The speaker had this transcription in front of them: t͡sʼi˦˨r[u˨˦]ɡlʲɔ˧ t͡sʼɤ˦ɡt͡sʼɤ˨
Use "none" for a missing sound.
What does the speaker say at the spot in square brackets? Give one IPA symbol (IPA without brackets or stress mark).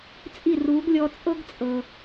u˨˦